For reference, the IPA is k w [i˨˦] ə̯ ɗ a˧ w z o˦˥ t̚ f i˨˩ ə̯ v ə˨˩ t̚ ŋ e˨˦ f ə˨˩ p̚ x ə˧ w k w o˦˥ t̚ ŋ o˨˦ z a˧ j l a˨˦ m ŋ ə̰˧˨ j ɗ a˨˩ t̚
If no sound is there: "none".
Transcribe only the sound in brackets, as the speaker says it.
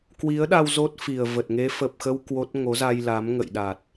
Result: i˨˦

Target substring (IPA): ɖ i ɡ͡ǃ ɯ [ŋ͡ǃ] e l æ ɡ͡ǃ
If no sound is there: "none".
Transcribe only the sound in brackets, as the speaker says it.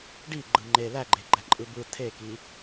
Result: ŋ͡ǃ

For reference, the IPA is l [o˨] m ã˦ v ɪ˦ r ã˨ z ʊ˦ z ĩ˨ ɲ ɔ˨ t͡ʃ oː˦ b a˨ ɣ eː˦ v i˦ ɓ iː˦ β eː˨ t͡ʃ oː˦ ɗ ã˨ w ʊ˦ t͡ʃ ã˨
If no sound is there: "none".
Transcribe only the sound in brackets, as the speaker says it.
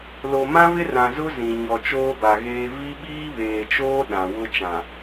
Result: o˨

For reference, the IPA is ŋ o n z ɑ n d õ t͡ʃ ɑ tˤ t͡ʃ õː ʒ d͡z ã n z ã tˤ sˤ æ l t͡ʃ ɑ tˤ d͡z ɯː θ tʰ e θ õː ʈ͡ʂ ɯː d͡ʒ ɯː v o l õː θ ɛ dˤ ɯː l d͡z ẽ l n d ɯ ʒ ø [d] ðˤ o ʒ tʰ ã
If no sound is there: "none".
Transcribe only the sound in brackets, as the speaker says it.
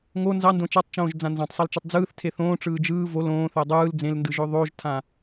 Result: none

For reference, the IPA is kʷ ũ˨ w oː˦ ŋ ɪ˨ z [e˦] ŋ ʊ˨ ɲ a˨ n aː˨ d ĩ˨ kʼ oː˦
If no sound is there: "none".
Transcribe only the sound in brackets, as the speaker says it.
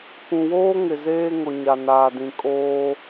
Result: eː˦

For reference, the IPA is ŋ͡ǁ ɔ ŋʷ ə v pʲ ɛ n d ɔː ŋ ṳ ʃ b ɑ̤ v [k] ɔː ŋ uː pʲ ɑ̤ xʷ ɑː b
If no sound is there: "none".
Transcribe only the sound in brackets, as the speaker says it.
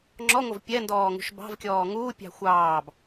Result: kʲ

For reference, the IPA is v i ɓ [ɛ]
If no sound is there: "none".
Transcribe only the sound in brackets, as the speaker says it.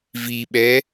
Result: ɛ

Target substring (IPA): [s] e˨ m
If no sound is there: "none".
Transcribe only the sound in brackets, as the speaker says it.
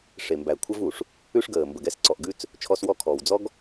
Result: ʂ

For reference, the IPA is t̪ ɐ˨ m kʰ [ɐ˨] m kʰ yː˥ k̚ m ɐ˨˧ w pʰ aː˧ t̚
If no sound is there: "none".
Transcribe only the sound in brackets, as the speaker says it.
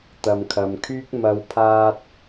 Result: ɐ˨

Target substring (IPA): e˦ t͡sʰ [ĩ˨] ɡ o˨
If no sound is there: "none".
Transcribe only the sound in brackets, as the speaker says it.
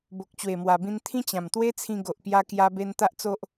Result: ĩ˧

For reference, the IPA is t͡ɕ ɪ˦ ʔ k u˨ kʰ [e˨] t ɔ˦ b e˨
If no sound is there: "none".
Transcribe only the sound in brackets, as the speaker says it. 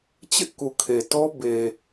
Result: e˨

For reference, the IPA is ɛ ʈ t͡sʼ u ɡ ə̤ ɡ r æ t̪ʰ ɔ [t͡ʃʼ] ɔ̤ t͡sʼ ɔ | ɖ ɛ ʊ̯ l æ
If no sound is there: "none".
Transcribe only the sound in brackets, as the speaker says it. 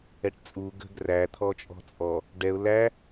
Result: t͡ʃʼ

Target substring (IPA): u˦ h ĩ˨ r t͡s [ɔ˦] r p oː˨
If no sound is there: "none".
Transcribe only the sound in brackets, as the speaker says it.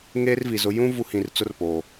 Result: ʊ˦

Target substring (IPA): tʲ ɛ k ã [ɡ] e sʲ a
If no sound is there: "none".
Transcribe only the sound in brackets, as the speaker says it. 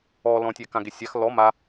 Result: ɡ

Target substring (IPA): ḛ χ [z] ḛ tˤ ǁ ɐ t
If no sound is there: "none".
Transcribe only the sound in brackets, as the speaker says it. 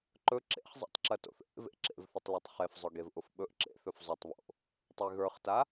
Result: zˤ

